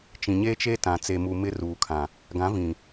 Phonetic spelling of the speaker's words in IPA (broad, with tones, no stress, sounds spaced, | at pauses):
t͡ʃ ĩ˨ ɲ eː˦ t͡ʃ e˦ t ã˨ t͡s e˨ m u˨ m ɪ˦ r uː˨ kʰ ã˨ | ɡ ã˨˦ v ĩ˨